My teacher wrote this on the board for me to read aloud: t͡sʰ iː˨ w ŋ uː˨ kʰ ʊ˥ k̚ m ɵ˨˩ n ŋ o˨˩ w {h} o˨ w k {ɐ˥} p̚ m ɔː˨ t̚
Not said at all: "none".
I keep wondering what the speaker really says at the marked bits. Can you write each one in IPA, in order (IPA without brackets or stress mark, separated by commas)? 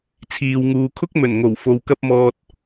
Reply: f, ɐ˧